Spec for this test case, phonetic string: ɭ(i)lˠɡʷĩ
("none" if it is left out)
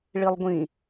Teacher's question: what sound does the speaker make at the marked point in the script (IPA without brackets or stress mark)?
i